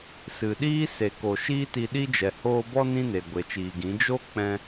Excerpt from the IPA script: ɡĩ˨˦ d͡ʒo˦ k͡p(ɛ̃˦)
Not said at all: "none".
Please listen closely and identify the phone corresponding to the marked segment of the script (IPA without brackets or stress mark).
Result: ɛ̃˦